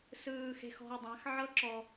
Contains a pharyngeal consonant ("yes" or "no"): yes